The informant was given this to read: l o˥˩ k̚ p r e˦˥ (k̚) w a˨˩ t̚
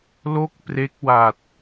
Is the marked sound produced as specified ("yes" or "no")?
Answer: yes